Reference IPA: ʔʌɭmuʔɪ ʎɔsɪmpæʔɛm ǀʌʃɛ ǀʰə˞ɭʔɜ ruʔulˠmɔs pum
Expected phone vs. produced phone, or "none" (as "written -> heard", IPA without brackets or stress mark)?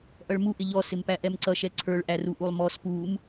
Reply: ɜ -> æ